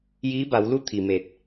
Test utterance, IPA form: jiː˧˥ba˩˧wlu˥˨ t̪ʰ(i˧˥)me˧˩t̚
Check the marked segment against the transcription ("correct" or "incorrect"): incorrect